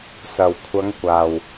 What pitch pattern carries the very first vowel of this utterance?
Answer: low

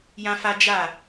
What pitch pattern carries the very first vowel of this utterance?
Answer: high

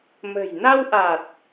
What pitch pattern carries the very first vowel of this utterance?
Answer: low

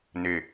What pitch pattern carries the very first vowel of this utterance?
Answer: low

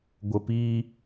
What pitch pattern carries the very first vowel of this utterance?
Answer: low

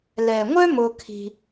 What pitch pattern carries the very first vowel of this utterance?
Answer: low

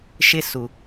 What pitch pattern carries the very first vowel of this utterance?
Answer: high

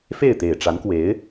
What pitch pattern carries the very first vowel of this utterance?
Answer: falling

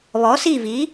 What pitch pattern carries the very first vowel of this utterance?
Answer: rising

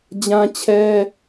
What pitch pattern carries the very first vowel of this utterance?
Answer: high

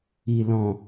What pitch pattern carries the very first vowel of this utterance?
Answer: low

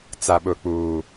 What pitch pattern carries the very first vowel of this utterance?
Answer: low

